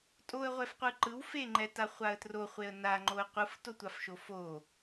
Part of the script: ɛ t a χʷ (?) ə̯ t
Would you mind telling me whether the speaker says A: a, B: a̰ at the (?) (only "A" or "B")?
A